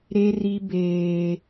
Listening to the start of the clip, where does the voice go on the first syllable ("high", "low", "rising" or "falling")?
high